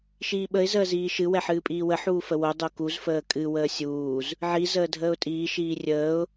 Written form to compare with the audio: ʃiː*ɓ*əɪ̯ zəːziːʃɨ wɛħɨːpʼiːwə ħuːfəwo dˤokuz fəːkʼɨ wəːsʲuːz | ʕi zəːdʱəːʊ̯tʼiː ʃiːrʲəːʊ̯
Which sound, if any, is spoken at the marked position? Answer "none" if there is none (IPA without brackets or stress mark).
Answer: ɓ